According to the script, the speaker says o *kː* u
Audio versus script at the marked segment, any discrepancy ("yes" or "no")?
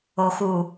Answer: yes